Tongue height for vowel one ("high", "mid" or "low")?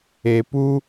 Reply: mid